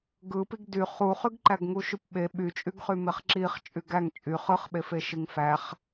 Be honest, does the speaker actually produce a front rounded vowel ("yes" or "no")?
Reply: yes